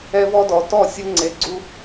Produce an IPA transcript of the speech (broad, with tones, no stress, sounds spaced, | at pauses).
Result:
ɛ˦ v ɔ˦ d ɔ˨ t ɔ˦˨ sʲ ɯ˧ ŋ͡ǀ e˨ ɡ͡ǀ u˧